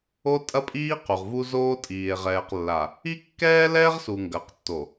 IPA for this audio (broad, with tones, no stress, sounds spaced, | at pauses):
o˦ tʼ ɐ˦ pʼ iː˦ q u˨ ʁ v u˦ z oː˦ tʼ iː˨ e̯ ʁ ɛː˨ q lː a˨ | i˦ kː ɛː˦ l ɛː˦ ʁ s u˨ ŋ ɡ ɐː˨ q tː o˨